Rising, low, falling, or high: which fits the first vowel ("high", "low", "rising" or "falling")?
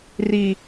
high